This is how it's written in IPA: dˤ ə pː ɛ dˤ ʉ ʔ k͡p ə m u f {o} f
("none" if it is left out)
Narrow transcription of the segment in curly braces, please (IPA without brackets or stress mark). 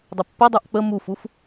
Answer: u